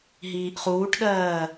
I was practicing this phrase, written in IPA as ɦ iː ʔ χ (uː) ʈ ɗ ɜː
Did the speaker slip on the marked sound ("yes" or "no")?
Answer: no